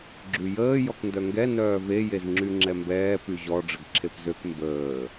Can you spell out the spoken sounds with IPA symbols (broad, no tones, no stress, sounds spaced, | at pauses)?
ɡ͡ǁ y j əː j ɔ k n d œ ŋ ɡ ɛ n œː v e j e z ŋ͡ǁ y ŋ͡ǁ ɛ m b ɛː p y ʑ ɔ ɖ͡ʐ ə ɡ ǁʰ e p z ø k m b əː